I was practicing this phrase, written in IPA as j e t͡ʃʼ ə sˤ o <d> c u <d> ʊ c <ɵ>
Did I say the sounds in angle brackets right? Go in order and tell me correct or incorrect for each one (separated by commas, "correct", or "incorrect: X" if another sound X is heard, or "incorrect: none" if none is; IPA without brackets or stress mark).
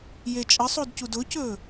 correct, correct, correct